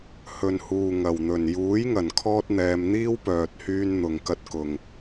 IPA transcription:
h ɵ˨ n h uː˨ ŋ ɐ˨˩ w n̪ ɵ˨˩ n j uː˨˥ j ŋ ɐ˨˩ n kʰ ɔː˥ t̚ n̪ ɛː˧ m n̪ iː˥ w p œː˨ t̚ h yː˧ n n̪ ʊ˨ ŋ k ɐ˥ t̚ k ʊ˨ ŋ

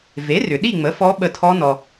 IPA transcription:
v e˩˥ r ʏ˩ ɗ i˥˨ ŋ͡m ə˩˥ f ɔ˧˥ ɓ ə˧˩ tʰ ɔ˧˥ n ɔ˩

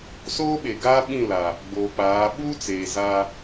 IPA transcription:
s oː˦ ɓ e˨ ɡ aː˦ ɓ ĩ˦˨ l a˨ | ɡ͡b oː˨ k͡p aː˨˦ ɓ uː˦ t͡s eː˨ z a˦

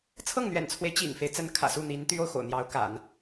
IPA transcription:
t͡sʰ ɤ˥˩ ŋ n̪ ɥ ɛ̰˨˩ n t͡sʰ w e˦ ɪ̯ t͡ɕ ḭ˨˩ ŋ f e˦ ɪ̯ t͡s ə˧˥ n kʰ ä̰˨˩ s u˥˩ n̪ i˧˥ n t̪ y˥ o˨ ʊ̯ x o̰˨˩ ʊ̯ n̪ j ɑ˧˥ ʊ̯ k a̰˨˩˦ n

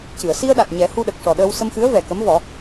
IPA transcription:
c ɨ˨˩˨ ə̯ s i˧ ə̯ ɗ a˨˩ t̚ ɲ ɛ˨˩˦ h u˧ ɗ ə˨˩ k̚ ʂ ɔ˨˩ ɗ əː˧ w s ə˧ m x ɨ˧˥ ə̯ v ɛ˨˩ k ə˧˥ m v ɔ˨˩˦

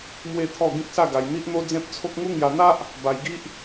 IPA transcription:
m w e˦ t̪ʰ ɔ˥˧ ɡ ĩ˦ k̚ s a˥˧ ɡ a˧ j n̪ i˦ ʔ n̪ o˦ d͡z ẽ˦ p̚ t͡sʰ o˦ k̚ ŋ u˦ ŋ j a˧ n̪ a˦ ʔ | b a˧ j ɡ i˦ ʔ

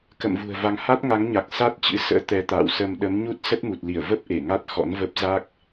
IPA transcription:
k ə̰˧˨ m v ṳ˨˩ ə̯ v a˨˦ ŋ h a˦˥ t̚ ŋ a˨˦ ŋ ɲ a˨˩ k̚ s a˦˥ t̚ t͡ɕ ɨ̰˧˥ s ə̰ː˧˥ t̪ ɛ˨˦ t̪ a̰ː˧˨ w s ə˧ m ɗ ə˨˦ m ɲ u˦˥ t̚ s ə˦˥ t̚ m u˨˩ t̚ l i˧˩ ə̯ v ə˦˥ p̚ ʔ e˧˩ ŋ a˦˥ t̚ x ɔ̰˧˥ n v ə˦˥ p̚ z a˦˥ k̚

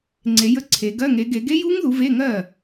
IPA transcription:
ŋ͡ǀ e˨˦ j ə˧˥˧ ǀʰ e˨˦ ɡ ɜ˧˥˧ ŋ e˨˦ ɡ e˨˦ ɡ e˦˥ j u˦˥ ŋ ð u˨˦ v e˧˥˧ ŋ ɜ˥˩

